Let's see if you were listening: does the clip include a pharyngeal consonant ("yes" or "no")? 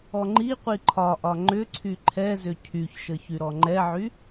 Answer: yes